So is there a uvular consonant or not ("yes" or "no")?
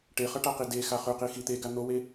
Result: yes